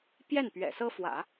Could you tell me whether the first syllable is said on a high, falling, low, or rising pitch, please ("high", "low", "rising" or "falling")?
falling